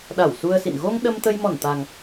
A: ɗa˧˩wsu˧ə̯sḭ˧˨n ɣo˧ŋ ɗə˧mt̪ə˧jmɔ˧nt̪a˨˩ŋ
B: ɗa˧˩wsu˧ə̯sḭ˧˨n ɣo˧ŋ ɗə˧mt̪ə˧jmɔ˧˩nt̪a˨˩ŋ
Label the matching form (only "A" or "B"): B